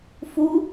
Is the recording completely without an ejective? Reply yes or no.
yes